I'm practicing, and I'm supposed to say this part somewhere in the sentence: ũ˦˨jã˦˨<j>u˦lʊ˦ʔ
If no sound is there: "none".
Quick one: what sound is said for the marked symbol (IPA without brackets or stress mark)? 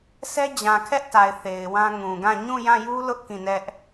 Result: j